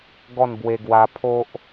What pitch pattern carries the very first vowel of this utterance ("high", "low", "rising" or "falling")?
falling